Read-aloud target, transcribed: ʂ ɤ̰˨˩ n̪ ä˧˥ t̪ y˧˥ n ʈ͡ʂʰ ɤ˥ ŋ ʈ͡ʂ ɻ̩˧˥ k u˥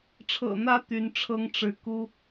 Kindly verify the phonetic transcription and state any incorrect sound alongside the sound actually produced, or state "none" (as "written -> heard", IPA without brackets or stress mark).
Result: ʂ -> ʈ͡ʂʰ